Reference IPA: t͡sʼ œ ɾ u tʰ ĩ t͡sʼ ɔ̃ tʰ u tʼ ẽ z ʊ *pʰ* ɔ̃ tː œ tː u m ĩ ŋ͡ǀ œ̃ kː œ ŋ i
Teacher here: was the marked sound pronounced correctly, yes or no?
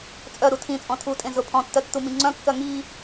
yes